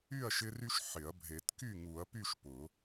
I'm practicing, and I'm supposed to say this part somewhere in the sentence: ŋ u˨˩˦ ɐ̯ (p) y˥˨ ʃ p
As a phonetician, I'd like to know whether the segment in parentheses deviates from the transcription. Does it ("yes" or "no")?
no